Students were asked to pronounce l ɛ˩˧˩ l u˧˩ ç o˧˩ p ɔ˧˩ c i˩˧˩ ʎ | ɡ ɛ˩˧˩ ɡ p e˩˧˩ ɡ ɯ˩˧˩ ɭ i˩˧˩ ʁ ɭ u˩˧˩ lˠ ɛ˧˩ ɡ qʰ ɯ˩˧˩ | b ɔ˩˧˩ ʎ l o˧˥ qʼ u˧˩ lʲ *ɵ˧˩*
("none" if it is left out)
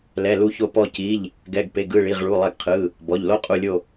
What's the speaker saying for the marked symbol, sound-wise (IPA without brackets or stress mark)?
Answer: o˧˩